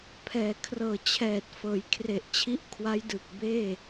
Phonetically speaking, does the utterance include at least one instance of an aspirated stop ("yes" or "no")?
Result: yes